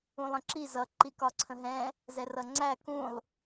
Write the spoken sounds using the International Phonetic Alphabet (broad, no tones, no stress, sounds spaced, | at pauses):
ũ lˠ ə̃ ǁ i z ʌ ǃ i k ɒ ǀʰ ə̃ ɦ ɛ̃ | z ɛ r ʌ ŋ͡ǀ æ k ũ lˠ